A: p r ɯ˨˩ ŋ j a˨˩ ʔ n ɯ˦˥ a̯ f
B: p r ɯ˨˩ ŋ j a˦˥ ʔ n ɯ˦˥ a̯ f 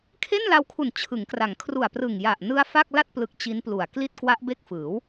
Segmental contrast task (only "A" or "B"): A